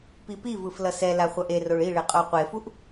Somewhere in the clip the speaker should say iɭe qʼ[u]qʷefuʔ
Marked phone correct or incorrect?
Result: incorrect: o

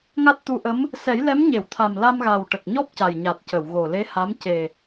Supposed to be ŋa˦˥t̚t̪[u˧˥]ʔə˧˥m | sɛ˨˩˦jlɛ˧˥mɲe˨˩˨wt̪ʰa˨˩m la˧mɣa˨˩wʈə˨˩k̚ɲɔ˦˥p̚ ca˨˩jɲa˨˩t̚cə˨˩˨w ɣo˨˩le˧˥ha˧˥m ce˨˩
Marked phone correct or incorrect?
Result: correct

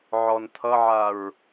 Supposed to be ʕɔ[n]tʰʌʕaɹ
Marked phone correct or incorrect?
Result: correct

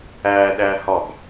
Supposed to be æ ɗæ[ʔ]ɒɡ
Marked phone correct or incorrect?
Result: incorrect: h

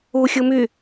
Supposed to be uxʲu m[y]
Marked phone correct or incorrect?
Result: correct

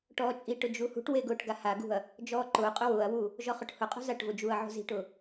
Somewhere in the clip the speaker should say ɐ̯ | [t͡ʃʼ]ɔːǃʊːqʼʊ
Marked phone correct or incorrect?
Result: incorrect: d͡ʒ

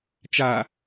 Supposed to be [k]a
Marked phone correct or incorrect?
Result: incorrect: t͡ʃ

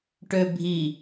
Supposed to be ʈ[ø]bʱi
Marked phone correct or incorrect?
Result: correct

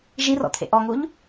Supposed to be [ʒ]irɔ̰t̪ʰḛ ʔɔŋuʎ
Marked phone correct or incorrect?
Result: correct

